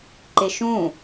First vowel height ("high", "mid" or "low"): high